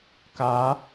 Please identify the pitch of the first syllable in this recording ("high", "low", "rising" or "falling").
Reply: rising